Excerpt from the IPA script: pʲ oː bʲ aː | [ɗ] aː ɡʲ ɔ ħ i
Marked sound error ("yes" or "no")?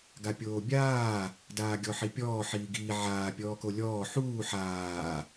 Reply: yes